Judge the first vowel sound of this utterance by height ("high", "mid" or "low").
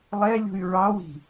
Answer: mid